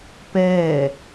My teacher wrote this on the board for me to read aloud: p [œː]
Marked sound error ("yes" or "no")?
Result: yes